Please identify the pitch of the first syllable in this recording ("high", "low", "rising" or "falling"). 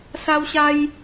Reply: high